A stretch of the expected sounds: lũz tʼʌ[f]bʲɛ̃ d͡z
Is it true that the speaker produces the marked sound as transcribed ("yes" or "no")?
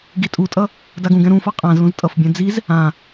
yes